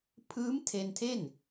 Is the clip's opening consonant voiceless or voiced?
voiceless